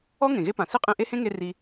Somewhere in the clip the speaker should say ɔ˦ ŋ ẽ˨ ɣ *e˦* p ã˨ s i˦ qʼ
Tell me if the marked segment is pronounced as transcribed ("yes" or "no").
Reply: yes